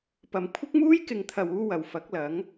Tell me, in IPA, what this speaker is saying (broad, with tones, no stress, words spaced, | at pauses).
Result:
pɐ˨m kʷʰɪ˥k̚muː˥jkɪ˨ŋt̪ʰɐ˨w uː˥wɐ˨w fɐ˨˥k̚lɐ˨˥ŋ